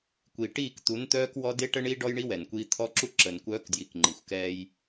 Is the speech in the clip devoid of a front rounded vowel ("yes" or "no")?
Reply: no